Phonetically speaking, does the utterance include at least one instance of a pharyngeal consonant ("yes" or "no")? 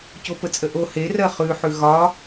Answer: yes